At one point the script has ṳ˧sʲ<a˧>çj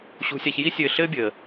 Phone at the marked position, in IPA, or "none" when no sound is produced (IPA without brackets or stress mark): a˧